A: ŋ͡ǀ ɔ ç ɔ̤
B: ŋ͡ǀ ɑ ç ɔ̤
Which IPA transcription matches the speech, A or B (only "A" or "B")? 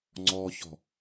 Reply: A